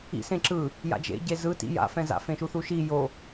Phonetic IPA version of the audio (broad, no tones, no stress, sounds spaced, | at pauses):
ḭ s ẽ ǁ ɯ | j a̰ d͡ʒ ḛ ɟ e z ɯ t ḭ j a̰ f ɛ̃ z a̰ f ẽ ʃ u θ u ʃ i j o